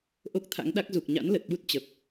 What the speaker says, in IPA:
ʔo˦˥k̚t̪ʰa̰˧˥ŋɗa˦˥k̚ zu˨˩k̚ɲa̰˧˥nlə˨˩t̚ ɓu˦˥t̚t͡ɕə˨˩p̚

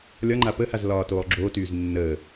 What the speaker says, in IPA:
lʲɒŋ͡ǃa pəhaz lɒːtoːlˠɡ͡ǁoːtyːz nːəː

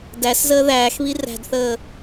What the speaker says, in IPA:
dæszəː ðæːxβi ræ̤dθəː

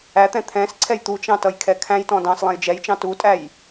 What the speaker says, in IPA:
æt̪ɛ̃ t̪ʰɛ̃sǀʰɛj t̪ut͡ʃɑ̃ tʌjkʰɛkʰæ̃jtɔ̃ dɑ̃s lˠɛ̃jd͡ʒɛjt͡ʃɑ̃ tutʼæj

